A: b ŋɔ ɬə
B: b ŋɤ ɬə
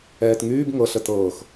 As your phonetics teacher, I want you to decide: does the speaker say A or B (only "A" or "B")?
B